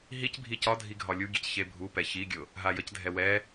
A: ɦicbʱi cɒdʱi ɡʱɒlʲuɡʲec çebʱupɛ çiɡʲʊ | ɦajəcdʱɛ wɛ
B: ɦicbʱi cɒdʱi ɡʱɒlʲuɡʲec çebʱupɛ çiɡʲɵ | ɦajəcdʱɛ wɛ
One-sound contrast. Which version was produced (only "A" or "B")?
A